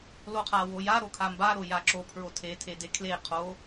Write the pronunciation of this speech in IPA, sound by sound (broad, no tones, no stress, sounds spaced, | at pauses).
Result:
l o qʰ a w o j a ɾ o kʰ a m b a ɾ o j a ǁ o pʰ ɹ o tʰ e tʰ e d e kʰ l e qʰ o